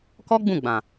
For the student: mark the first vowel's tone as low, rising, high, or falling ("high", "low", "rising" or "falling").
high